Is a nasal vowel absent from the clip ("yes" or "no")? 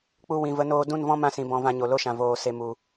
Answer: no